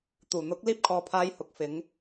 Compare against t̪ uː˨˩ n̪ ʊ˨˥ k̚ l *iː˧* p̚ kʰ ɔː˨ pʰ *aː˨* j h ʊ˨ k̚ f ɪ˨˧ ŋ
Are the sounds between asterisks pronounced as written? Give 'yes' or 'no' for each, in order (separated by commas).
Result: yes, no